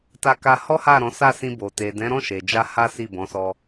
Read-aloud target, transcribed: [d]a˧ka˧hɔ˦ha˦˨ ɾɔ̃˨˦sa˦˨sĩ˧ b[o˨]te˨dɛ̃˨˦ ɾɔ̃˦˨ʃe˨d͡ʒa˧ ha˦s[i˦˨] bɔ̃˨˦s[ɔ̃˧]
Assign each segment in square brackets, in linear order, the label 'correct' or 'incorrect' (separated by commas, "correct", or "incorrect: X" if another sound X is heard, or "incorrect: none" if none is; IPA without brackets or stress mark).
incorrect: t, correct, correct, incorrect: ɔ˧